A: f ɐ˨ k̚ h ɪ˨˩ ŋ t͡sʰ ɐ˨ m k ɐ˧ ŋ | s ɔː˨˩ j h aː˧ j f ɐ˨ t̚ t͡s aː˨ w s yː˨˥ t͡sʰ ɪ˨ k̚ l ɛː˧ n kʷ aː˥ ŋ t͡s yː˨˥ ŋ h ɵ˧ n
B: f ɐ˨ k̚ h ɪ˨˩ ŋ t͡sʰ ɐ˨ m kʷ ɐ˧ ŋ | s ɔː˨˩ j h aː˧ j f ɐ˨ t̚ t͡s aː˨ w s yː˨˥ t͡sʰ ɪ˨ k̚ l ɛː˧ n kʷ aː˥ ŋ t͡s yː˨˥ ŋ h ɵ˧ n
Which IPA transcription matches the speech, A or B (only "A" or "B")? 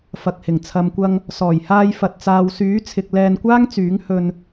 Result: B